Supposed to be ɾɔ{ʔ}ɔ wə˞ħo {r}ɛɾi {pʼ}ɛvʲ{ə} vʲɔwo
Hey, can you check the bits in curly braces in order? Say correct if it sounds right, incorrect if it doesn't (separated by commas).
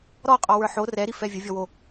incorrect, correct, incorrect, correct